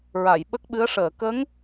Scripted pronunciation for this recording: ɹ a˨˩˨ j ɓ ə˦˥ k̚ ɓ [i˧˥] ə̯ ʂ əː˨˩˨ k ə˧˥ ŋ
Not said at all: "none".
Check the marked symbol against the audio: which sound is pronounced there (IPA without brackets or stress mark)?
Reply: ɨ˧˥